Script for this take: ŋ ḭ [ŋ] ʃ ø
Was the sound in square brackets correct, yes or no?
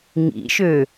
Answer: no